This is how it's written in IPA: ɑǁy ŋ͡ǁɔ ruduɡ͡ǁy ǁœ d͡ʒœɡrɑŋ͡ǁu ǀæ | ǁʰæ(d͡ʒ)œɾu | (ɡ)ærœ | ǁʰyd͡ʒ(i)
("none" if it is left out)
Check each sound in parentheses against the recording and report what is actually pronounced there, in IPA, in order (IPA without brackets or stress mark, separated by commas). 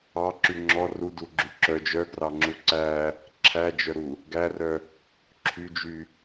d͡ʒ, ɡ, y